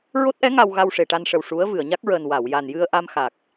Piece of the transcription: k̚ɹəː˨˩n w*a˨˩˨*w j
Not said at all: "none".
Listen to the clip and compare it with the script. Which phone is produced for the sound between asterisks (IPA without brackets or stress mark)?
a˨˩˨